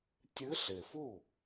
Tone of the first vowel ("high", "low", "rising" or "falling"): rising